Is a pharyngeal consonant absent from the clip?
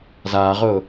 yes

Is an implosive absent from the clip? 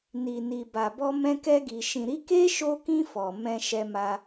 yes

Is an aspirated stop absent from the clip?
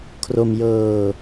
no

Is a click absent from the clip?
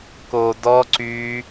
no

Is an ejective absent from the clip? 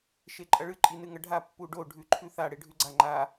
no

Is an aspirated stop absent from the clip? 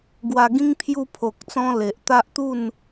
no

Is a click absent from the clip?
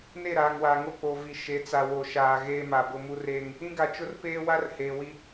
yes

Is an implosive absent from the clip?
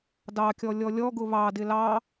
yes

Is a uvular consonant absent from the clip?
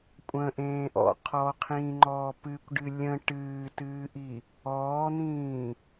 no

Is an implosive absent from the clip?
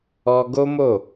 yes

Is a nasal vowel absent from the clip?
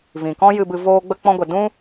no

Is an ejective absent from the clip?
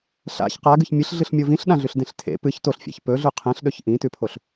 yes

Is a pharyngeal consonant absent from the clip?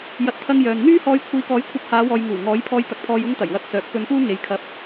yes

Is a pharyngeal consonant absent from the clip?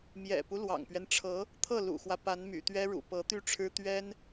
yes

